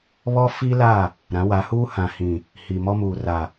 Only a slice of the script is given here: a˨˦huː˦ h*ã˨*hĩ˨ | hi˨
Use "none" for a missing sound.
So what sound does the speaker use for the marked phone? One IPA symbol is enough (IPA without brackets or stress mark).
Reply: ã˨